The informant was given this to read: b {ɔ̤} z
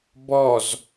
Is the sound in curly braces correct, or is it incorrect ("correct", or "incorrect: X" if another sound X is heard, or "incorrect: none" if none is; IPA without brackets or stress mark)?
incorrect: ɔ